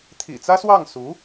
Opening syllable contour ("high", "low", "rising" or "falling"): low